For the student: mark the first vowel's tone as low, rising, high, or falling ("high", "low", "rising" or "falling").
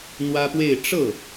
high